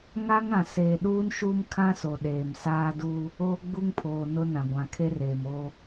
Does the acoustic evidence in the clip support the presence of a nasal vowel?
yes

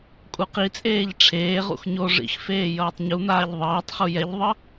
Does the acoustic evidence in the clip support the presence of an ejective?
yes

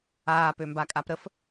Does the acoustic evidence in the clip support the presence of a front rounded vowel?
yes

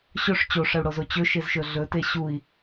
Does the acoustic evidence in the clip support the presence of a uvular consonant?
no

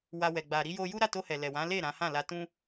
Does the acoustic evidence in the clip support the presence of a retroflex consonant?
no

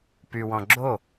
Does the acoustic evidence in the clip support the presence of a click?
yes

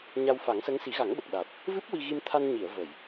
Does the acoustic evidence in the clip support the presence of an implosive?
yes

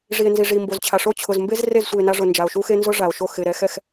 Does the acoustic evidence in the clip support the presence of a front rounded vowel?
no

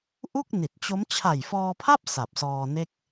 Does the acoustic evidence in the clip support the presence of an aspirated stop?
yes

